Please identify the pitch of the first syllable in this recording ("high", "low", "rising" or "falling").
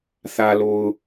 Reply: low